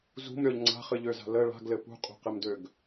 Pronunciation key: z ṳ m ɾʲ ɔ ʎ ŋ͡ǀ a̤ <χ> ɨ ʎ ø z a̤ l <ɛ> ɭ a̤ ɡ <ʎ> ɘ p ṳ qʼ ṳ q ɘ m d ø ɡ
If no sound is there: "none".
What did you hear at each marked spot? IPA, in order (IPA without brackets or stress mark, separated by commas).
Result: χ, ə, l